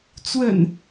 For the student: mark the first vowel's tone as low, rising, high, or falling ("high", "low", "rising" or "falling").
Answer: low